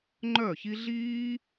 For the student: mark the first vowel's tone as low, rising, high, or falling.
falling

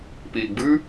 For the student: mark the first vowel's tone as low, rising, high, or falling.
low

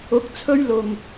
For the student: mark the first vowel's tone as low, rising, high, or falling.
rising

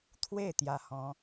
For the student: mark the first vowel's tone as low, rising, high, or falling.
falling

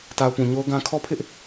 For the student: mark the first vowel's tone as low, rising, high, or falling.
low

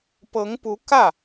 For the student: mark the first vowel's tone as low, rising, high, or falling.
rising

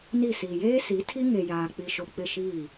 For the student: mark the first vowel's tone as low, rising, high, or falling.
falling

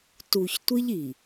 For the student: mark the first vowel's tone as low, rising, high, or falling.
low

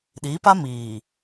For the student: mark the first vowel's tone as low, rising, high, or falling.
rising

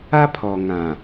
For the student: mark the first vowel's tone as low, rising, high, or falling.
high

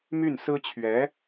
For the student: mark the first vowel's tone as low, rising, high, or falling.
falling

